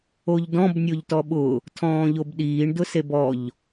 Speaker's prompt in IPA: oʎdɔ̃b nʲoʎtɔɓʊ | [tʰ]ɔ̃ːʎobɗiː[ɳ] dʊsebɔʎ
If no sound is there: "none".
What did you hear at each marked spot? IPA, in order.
tʰ, ɳ

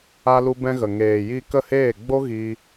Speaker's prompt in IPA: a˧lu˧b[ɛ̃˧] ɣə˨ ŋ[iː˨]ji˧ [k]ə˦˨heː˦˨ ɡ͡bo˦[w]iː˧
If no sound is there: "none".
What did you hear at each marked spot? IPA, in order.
ɛ̃˧, eː˨, k, ɣ

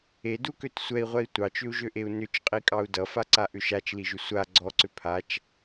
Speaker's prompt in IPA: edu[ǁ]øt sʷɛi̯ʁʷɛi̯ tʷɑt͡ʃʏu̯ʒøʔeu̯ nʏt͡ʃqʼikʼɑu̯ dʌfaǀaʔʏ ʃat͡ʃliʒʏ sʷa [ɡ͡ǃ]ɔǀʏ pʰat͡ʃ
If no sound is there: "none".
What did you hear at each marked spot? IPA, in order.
k, ɡ͡ǀ

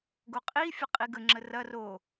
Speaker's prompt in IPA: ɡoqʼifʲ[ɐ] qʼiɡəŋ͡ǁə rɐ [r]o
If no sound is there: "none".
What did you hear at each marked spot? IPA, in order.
ə, r

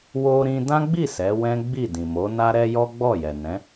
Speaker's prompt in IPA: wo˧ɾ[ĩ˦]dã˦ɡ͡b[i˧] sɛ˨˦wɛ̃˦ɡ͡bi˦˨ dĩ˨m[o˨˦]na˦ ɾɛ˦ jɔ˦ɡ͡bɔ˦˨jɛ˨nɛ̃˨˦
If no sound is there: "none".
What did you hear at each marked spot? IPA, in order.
ĩ˧, i˦˨, o˨˦

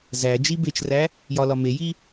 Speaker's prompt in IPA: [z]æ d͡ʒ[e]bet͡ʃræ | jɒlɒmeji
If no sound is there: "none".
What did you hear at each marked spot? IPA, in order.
z, i

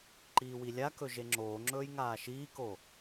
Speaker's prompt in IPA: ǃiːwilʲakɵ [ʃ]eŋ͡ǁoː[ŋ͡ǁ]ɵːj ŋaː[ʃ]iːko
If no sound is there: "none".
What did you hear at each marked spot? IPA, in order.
ʒ, ŋ͡ǁ, ʃ

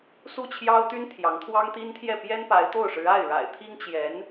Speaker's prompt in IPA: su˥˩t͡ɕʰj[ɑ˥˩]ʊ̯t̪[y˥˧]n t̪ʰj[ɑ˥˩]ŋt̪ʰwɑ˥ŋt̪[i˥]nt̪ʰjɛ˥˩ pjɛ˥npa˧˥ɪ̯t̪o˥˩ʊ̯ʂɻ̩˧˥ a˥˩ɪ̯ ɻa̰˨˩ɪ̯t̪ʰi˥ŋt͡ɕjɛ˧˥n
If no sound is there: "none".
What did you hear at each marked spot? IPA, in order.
ɑ˥, y˥, ɑ˧˥, i˥

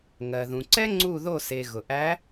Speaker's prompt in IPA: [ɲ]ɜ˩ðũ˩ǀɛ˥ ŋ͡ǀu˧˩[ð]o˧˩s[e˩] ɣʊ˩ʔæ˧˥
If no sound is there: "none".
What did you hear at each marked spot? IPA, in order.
ŋ, ð, e˩

